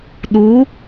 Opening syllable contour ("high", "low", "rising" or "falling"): rising